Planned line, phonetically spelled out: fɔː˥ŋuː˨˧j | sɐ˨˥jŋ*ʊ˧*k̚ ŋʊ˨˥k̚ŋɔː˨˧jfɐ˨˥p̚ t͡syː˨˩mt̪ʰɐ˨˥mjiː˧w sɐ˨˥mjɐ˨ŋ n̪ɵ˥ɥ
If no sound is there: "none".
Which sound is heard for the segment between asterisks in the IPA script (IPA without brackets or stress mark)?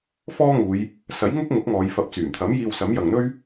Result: ʊ˥